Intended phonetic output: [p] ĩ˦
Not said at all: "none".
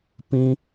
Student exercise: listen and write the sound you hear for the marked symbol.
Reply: p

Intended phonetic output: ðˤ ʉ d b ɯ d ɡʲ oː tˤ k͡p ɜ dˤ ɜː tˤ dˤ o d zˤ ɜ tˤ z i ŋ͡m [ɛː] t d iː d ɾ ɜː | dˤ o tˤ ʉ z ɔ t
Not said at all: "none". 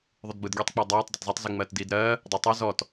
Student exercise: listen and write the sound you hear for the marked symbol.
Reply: ɜː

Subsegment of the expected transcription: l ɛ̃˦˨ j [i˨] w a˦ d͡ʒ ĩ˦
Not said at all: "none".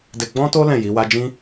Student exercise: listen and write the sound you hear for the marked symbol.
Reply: i˨˦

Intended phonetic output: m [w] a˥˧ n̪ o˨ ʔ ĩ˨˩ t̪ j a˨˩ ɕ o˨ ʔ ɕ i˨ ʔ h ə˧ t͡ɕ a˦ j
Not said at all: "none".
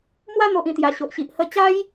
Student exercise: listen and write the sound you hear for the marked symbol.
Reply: w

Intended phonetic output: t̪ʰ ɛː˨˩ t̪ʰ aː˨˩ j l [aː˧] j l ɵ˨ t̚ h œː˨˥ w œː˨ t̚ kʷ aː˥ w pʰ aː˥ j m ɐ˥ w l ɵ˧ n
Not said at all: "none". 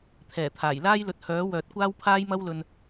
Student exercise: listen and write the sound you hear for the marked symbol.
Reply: aː˥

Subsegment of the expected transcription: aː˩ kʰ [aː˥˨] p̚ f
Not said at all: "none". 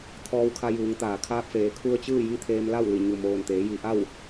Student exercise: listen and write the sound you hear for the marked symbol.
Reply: aː˧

